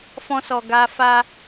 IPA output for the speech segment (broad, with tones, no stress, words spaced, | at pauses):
fɔ̃˧sɔ˨ ɡa˧fa˦